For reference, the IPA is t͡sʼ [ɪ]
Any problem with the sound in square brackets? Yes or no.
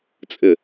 no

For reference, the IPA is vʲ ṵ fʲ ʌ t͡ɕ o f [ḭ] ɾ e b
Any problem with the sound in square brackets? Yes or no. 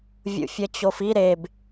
yes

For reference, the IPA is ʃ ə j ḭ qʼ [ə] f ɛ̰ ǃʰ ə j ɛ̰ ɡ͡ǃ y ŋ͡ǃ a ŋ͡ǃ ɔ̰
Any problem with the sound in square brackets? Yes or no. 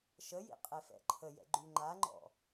yes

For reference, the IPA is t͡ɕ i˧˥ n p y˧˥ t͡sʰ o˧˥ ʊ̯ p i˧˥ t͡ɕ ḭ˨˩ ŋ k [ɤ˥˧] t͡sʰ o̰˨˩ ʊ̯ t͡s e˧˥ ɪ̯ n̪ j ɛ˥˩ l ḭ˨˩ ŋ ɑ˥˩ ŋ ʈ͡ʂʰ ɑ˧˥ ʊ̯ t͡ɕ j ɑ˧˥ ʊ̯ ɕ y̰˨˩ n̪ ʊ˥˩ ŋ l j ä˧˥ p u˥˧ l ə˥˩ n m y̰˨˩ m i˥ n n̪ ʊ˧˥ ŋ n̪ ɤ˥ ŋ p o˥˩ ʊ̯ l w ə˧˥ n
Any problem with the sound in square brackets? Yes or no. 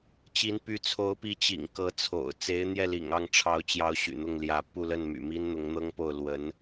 yes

